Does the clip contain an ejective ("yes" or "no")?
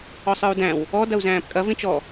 yes